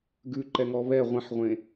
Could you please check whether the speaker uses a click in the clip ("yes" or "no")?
yes